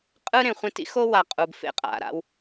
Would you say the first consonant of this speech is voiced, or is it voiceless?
voiceless